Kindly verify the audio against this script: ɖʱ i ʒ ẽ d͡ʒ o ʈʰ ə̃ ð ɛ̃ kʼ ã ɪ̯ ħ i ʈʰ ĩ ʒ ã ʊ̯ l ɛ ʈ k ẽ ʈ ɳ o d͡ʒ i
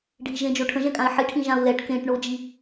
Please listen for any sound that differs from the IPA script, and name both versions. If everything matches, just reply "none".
ð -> ʒ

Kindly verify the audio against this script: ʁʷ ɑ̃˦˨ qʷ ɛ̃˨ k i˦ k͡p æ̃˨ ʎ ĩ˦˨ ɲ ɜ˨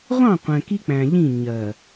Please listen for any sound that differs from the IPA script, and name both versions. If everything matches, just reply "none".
none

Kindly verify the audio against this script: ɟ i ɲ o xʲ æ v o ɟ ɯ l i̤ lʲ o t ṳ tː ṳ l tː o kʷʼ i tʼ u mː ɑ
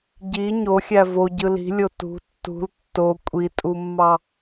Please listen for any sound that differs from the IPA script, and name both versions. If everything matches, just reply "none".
none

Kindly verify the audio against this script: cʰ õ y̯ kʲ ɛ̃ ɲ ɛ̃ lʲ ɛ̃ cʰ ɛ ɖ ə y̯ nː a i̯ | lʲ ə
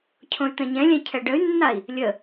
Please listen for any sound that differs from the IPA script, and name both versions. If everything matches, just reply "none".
kʲ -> t̪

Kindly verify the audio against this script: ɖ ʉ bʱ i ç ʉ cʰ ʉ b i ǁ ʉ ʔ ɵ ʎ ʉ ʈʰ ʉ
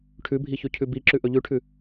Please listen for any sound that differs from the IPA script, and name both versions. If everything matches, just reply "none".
ɖ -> ʈʰ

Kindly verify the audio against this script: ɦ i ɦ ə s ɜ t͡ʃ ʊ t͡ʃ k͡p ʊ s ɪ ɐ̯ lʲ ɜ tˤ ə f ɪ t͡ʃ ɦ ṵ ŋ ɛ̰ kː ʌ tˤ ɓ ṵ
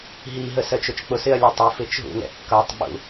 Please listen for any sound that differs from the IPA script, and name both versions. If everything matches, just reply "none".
none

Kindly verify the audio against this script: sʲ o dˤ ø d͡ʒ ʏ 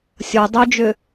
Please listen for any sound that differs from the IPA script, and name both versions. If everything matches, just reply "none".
none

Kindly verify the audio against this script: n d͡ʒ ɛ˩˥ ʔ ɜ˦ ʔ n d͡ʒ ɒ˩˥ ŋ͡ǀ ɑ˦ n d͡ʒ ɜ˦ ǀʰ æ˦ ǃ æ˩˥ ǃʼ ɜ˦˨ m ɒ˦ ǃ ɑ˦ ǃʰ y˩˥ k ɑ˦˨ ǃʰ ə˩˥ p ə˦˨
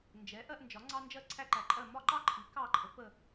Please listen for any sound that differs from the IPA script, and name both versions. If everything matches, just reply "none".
y˩˥ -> i˩˥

